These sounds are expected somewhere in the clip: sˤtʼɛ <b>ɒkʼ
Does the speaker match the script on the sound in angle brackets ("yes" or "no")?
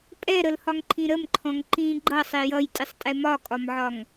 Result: no